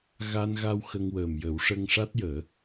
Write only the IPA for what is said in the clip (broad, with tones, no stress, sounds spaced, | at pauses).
ɣ a˧ n ɣ a˧ w x ə˧ ŋ w əː˨˩ m j ə˨˩˦ w ʂ ə˧ ŋ ʂ a˦˥ t̚ j əː˨˩˦